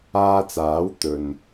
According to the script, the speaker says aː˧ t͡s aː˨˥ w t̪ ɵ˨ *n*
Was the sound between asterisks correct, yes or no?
yes